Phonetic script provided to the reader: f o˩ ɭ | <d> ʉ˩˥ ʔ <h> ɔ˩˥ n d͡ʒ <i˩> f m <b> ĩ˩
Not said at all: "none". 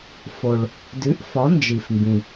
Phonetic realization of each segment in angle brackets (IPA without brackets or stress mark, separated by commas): d, f, i˩, b